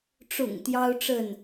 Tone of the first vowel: low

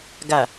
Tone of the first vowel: low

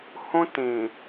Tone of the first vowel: high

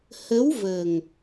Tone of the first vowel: rising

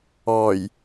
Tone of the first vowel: low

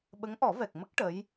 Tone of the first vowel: rising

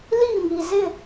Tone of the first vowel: falling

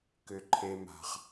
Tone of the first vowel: high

